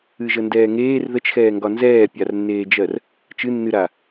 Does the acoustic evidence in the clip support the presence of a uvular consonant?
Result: no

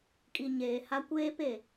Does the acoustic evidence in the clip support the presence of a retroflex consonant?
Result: no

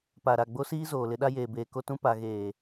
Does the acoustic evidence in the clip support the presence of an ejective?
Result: no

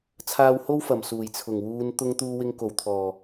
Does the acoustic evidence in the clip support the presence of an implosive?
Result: no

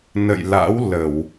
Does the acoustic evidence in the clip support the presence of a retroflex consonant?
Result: no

